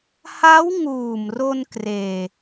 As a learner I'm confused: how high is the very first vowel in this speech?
low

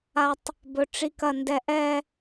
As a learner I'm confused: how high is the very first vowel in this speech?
low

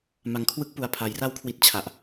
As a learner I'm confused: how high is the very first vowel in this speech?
low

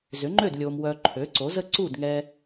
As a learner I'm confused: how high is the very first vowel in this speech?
high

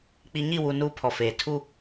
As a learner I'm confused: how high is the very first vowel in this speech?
high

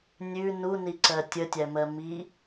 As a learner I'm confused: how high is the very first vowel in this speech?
high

